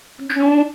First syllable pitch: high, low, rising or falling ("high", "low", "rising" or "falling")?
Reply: high